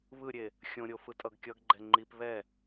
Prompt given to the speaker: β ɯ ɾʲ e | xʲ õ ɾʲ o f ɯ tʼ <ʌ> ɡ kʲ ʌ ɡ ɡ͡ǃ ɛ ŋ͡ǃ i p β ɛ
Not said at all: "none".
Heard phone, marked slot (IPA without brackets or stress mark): ʌ